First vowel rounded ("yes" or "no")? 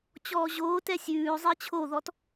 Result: yes